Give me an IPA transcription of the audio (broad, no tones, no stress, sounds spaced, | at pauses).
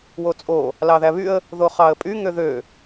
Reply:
w o t͡sʼ o | l ɑ ð æ β y ə̯ | ð o χ ɑ ə̯ pʼ y ŋ ø ð ø